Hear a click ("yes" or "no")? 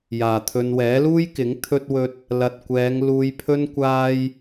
no